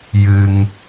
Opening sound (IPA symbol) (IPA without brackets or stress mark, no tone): j